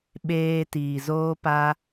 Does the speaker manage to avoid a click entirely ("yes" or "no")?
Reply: yes